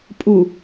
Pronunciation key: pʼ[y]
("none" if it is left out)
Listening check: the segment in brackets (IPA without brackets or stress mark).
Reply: u